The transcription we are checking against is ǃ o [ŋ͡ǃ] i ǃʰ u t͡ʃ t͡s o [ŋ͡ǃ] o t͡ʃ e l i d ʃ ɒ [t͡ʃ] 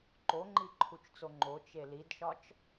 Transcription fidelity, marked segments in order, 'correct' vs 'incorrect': correct, correct, correct

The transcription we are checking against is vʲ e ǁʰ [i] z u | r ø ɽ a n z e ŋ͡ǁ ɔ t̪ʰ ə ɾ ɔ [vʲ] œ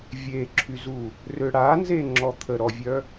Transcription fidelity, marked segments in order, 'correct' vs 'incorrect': incorrect: y, correct

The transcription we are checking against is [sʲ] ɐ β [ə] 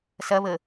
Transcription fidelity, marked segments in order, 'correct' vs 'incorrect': incorrect: s, correct

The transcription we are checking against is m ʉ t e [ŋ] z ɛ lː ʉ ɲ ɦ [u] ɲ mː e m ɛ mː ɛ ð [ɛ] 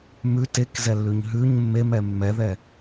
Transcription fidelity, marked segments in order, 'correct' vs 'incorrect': incorrect: k, incorrect: ʉ, correct

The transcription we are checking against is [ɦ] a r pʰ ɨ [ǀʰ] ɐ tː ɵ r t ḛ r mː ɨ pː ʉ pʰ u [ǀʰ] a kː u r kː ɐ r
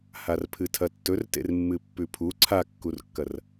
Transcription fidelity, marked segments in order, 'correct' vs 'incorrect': incorrect: h, incorrect: tʰ, correct

